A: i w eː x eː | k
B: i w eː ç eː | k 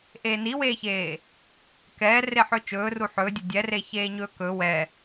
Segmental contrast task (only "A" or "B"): B